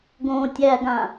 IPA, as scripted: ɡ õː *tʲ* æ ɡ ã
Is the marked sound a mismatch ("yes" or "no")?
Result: no